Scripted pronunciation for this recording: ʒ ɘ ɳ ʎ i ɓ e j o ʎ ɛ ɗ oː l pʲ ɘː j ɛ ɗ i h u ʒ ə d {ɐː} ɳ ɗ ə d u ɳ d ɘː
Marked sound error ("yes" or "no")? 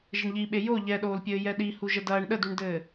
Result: no